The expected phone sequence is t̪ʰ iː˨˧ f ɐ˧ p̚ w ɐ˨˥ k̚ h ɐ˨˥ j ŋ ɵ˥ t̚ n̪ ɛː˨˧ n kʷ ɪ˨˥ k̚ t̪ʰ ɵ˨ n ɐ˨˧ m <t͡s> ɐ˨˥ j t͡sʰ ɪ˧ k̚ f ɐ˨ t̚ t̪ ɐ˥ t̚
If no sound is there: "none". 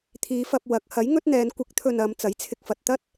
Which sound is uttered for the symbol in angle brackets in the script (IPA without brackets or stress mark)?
t͡s